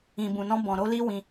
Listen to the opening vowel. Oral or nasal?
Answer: nasal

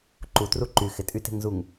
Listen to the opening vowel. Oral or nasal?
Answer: oral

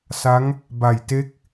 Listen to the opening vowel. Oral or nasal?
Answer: oral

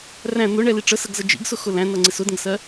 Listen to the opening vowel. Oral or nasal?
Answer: nasal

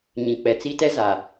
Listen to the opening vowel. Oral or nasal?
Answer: nasal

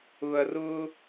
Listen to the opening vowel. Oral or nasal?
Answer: oral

